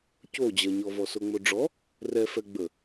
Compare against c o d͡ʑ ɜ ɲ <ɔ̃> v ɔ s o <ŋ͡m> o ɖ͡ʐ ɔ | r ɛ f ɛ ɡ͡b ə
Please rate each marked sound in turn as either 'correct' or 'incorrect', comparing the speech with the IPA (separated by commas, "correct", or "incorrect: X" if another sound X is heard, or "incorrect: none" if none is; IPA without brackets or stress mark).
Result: incorrect: ɔ, correct